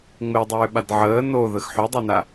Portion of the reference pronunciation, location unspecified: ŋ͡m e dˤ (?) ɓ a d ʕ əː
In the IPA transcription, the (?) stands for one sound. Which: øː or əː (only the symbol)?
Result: øː